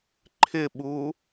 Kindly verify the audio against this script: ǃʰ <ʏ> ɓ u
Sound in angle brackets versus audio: incorrect: ɪ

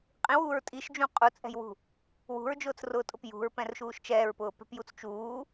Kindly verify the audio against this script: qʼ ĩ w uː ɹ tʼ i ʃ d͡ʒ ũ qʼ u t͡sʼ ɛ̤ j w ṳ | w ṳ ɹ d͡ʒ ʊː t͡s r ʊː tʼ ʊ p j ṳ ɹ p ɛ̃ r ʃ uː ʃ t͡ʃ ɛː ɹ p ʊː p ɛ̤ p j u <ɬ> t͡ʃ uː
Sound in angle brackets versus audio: incorrect: t͡s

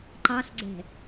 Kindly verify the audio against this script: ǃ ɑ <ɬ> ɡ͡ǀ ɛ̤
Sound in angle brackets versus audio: correct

